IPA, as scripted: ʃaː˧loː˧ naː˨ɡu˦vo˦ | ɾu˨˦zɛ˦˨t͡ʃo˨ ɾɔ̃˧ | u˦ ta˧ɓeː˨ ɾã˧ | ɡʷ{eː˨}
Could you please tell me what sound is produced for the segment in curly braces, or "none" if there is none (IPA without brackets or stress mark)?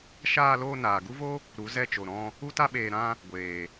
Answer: eː˨